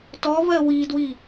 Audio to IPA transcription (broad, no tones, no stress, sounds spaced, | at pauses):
t ɔ v ɜ w i d w i